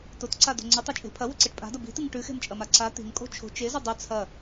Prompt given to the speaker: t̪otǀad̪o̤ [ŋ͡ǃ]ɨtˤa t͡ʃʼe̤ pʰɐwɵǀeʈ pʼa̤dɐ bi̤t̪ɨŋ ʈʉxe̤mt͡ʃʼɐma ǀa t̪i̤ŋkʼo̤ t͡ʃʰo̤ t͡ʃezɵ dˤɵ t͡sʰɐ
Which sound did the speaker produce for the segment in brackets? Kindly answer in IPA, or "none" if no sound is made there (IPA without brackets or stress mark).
ŋ͡ǀ